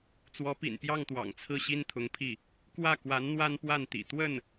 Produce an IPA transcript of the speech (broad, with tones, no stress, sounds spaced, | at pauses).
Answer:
t͡s w ɔ˧˥ p ḭ˨˩ n p j ɑ˥˩ ŋ t̪ w ɑ̰˨˩ ŋ t͡sʰ ɹ̩˥˩ ɕ i˥ n t̪ʰ ʊ˧˥ ŋ pʰ i˥˩ | k w ä˥˩ k w a˧˥ n n̪ w a˥ n p w a˥˩ n t̪ ḭ˨˩ t̪ w ə˥˩ n